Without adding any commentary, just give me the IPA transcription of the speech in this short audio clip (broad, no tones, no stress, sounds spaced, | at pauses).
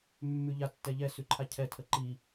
mː ʉ ʎ a tː ɛ ʎ ɛ s ʉ ǃʰ a cʰ ɛ tʰ ə ǃ i